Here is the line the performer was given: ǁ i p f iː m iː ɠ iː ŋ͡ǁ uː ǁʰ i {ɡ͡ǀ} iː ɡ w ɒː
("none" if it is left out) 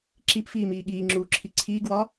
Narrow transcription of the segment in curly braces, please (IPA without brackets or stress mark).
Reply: ǀʰ